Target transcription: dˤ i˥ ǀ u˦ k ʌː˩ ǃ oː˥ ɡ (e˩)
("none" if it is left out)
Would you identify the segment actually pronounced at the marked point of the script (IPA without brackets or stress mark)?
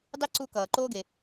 e˩